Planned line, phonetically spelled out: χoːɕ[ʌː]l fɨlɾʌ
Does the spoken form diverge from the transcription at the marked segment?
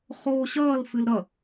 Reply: no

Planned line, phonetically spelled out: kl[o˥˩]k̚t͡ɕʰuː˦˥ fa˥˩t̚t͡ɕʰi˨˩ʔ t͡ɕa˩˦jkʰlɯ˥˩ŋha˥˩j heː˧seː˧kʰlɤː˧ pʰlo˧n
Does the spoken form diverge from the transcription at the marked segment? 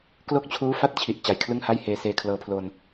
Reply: no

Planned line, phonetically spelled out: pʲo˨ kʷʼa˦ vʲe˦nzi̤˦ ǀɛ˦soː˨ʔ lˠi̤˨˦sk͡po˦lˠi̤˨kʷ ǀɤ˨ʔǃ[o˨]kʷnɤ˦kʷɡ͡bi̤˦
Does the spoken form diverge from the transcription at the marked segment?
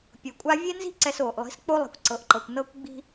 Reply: yes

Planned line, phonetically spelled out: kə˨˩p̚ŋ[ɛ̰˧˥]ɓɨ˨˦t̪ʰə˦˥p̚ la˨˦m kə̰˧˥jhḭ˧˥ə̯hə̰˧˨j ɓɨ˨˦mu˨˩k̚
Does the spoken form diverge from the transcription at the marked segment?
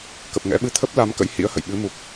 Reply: no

